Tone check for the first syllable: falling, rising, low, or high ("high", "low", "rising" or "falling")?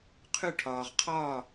falling